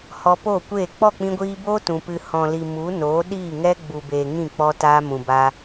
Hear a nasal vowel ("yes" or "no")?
yes